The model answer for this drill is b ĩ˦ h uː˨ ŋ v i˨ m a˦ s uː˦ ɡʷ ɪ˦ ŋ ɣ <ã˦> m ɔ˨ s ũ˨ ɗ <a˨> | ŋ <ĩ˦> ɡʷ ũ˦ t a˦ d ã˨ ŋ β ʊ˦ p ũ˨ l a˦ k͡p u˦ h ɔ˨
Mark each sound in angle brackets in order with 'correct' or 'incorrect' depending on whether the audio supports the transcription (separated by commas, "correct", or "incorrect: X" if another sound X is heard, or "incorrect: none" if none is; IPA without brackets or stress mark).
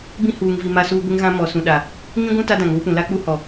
correct, correct, correct